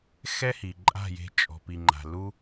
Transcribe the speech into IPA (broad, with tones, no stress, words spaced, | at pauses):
xɛ˦hi˨ ǃʼa̤˦˨je̤˧t͡ʃʼɔ̤˨ pi˨ŋ͡ǃa̤˨ lu˧